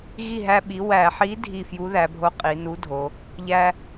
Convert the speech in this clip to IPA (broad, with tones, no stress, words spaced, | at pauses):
ɣi˥˨ɦæ˦ɓi˨˥ wæ˧˩˧ħi˨˥ dʱi˥˨ fju˨˥ðæ˩˧bʱo˨˥ qʼi˩˧ nu˨˥dʱo˩˧ | ʎæ˦